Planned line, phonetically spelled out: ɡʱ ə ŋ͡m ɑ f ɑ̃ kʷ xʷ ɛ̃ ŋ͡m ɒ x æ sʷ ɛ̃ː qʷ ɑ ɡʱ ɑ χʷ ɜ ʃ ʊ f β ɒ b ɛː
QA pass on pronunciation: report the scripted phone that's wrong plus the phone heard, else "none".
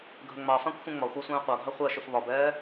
x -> xʷ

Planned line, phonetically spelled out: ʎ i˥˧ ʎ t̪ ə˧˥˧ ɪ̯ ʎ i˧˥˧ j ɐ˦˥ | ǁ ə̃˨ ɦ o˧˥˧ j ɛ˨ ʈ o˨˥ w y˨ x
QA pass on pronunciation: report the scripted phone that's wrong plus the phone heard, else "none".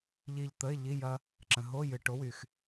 ɛ˨ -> ɨ˨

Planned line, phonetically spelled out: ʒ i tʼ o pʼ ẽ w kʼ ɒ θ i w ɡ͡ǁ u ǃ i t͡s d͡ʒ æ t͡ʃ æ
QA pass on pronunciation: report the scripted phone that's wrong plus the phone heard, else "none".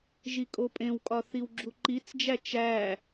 tʼ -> kʼ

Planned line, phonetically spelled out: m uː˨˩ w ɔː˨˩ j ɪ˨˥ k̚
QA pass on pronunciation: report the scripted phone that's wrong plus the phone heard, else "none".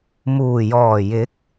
w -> j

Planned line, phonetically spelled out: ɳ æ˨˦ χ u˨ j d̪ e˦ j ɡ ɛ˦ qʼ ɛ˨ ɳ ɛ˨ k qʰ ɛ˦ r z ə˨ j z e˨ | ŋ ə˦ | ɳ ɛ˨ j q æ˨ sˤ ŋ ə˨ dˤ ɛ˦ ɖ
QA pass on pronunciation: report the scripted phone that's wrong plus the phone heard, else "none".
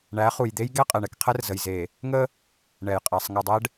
q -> qʼ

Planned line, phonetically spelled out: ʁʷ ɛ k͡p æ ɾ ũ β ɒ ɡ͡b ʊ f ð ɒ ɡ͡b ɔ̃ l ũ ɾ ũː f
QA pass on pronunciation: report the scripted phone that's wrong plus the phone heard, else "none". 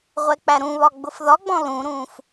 none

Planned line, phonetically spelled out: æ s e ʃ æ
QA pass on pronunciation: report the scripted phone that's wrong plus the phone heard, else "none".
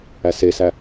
ʃ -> s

